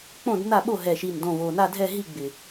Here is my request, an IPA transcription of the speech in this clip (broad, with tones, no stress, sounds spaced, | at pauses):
k͡p õ˥˨ d n a˥˨ ɓ o˥˨ ɦ ɛ˨˩ ʃ i˨˩ n d õ˨˩ v o˨˩ n a˥˨ dʱ ɛ˥˨ ɦ i˥˨ ɡ͡b ɪ˨˩